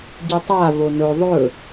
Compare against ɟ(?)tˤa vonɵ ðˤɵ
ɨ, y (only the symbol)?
ɨ